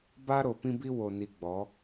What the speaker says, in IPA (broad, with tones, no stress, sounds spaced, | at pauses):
b a˦ ɾ o˨ p ĩ˦ b i˦ w o˨ n i˨ ɡ͡b ɔ˨˦